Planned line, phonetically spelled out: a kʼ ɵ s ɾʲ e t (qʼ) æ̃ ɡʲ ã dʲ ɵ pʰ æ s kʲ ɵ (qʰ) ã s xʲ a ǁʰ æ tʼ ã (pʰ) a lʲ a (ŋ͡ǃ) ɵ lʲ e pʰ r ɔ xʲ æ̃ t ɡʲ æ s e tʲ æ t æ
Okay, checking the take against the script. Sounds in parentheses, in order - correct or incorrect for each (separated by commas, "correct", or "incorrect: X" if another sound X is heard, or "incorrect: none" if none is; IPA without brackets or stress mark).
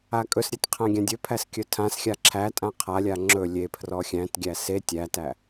incorrect: qʰ, incorrect: tʰ, incorrect: qʰ, incorrect: ŋ͡ǁ